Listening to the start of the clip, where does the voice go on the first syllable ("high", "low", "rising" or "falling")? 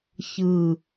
falling